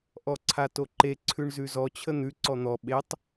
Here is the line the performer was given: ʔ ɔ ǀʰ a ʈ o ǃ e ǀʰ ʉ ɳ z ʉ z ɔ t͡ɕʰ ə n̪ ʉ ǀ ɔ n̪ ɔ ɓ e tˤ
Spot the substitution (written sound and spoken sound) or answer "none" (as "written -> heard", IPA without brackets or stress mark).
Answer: ʈ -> t